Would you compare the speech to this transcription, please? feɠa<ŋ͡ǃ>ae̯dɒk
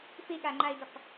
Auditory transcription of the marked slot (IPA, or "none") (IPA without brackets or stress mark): ŋ͡ǃ